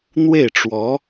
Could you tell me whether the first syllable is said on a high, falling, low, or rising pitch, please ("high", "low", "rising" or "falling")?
falling